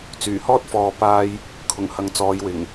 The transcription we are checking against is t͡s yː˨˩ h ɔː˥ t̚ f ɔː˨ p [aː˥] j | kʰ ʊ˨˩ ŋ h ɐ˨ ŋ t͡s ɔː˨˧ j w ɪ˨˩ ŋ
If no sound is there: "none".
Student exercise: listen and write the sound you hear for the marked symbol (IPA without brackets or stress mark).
aː˥